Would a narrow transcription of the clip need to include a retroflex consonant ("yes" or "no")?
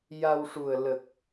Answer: yes